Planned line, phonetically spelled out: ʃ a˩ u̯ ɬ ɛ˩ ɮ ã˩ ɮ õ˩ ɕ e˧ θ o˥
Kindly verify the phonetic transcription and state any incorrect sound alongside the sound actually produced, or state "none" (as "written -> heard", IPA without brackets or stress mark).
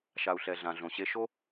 θ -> ʃ